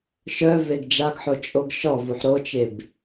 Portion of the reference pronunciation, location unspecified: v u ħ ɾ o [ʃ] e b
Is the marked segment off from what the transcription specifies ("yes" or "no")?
yes